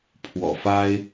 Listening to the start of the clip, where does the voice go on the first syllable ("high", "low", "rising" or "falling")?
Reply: low